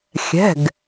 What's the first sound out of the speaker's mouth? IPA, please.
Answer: xʲ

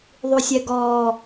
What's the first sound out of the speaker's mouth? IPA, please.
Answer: ðˤ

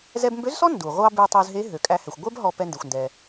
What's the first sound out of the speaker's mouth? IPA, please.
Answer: z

